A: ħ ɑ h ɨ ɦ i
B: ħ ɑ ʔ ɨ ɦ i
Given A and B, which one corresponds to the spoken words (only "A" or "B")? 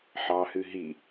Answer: A